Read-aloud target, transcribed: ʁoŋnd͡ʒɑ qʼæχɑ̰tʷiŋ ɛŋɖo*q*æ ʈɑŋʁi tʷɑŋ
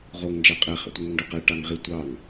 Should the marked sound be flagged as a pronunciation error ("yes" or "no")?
no